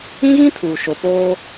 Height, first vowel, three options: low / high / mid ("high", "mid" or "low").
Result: high